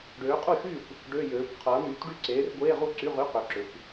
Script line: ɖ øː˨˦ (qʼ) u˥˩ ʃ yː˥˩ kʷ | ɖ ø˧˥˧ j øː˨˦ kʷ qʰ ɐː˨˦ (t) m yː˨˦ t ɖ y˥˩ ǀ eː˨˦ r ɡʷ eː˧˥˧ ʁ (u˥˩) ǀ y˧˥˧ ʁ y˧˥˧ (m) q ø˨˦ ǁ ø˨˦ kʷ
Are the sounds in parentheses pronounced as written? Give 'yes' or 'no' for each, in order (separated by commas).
yes, no, yes, no